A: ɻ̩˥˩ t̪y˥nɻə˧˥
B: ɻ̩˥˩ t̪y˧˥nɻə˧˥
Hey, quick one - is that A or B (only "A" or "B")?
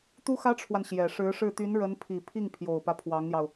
B